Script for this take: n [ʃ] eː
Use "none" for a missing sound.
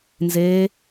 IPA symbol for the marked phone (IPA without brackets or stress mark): z